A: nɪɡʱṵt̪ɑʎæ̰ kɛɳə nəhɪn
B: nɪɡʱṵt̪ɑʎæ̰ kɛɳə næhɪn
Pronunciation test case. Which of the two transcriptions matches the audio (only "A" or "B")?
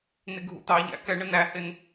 B